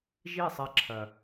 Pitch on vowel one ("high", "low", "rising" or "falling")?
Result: falling